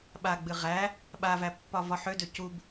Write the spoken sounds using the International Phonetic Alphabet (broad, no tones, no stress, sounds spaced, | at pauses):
ɓ a ɡ͡b ɨ ʁ æ | ɓ a v æ pː ɒ v ɒ ħ ø d ø c u b